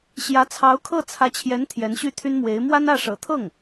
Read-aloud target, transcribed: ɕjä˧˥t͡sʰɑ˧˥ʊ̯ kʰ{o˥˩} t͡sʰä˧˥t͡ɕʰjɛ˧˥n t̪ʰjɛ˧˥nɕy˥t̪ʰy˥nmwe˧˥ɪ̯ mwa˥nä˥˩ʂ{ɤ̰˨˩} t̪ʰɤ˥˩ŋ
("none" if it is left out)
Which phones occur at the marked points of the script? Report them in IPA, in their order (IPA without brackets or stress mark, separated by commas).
ɤ˥˩, ɤ̰˨˩